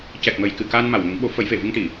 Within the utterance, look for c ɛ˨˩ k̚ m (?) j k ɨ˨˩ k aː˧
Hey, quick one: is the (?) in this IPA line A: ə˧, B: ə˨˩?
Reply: B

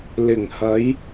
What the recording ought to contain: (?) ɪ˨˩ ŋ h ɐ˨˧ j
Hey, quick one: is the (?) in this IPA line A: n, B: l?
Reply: B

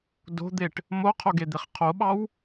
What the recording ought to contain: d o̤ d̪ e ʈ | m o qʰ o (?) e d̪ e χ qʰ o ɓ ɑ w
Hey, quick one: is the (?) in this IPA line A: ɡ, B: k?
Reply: A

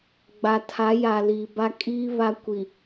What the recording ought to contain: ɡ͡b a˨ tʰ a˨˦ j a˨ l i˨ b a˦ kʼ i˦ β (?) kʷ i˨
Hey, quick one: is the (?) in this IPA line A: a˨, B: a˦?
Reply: B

